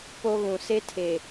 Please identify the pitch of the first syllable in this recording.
high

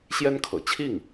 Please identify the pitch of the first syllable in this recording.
high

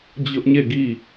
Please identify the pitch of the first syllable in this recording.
high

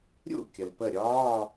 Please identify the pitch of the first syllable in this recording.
falling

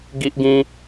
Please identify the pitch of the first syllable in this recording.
high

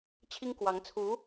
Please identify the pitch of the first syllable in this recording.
high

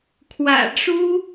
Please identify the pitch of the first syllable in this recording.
low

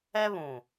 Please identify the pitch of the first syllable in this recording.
high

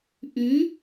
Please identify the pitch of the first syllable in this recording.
rising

